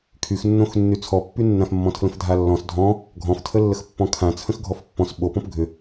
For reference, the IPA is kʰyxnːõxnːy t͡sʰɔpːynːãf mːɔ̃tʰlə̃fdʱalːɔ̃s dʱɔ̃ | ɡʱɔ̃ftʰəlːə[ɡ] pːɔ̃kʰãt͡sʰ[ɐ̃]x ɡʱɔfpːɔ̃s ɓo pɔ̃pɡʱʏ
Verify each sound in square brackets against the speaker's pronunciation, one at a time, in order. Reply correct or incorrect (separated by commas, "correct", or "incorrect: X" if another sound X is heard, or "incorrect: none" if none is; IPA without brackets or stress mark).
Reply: incorrect: x, incorrect: ə̃